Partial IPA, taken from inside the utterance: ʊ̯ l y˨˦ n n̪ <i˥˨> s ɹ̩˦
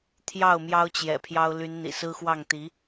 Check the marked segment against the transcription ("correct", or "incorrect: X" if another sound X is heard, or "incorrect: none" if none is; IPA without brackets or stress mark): incorrect: ḭ˨˩